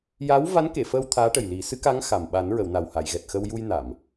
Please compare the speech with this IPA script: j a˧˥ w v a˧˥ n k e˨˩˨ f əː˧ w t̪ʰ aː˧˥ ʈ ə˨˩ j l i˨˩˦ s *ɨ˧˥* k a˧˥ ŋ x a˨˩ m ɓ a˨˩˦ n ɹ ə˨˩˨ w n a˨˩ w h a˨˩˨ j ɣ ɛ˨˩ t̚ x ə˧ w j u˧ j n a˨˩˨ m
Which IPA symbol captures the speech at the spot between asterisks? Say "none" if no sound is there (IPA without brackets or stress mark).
ɨ˧˥